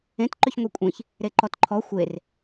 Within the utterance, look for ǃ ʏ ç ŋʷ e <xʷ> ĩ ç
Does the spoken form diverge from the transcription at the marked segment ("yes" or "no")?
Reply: yes